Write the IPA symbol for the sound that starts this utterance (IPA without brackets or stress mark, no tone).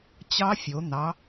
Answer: t͡ɕ